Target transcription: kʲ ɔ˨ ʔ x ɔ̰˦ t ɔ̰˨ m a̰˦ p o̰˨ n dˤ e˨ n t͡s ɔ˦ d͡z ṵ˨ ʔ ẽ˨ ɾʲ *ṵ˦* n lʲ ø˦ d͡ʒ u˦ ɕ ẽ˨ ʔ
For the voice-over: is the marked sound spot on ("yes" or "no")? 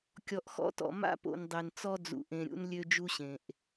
yes